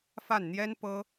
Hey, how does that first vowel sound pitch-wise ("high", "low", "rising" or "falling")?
falling